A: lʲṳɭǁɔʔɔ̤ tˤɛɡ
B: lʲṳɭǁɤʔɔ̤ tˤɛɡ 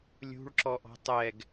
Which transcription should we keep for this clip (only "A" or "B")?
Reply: A